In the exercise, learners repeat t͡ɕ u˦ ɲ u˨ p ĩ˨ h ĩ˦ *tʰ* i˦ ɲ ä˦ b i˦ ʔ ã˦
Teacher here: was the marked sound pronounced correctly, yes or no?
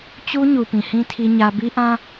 yes